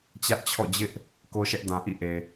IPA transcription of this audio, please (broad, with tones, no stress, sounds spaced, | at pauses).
t͡ɕ ä˦ ʔ t͡ɕʰ ɔ̰˦˨ d͡ʑ ɪ˦ ʔ | k o˦ ʃ ɛ˦ ʔ d ã˨ ʔ ḭ˦˨ ʔ e˨